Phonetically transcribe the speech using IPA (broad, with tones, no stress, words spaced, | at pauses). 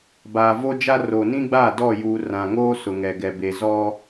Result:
baː˨vo˦d͡ʒa˦ ro˨nĩ˦ɡ͡ba˦˨ dɔ˦˨juː˨ rã˨ŋoː˦ sʊ˨ŋɛ˨ɡɛ˨ be˨zɔ˦